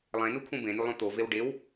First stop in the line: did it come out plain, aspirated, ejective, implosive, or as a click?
aspirated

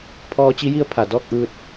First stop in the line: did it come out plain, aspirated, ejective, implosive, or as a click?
aspirated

